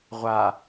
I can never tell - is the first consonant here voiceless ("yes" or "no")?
no